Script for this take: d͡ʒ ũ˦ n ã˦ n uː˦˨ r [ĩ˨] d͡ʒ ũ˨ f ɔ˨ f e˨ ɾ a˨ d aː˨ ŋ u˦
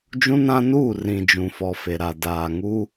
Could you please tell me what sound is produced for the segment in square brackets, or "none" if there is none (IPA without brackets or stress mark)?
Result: ĩ˨